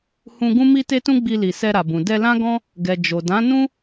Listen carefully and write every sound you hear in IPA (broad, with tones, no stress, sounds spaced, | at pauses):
h ũ˧ ɡ ũ˦ m i˦ t e˦ t ũ˦ ɡ͡b i˧ l i˨ s ɛ˧ ɾ a˨ b ũ˨ d ɛ˧ l ã˦ ɡ ɔ̃˦ | ɡ ɛ˨ d͡ʒ o˨ d ã˨˦ n ũ˦